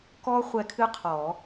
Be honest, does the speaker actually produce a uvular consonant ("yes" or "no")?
yes